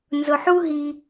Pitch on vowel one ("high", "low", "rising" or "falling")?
low